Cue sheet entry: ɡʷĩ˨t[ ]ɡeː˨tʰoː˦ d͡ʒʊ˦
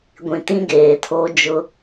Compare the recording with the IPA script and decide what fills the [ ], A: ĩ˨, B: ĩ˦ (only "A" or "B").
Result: B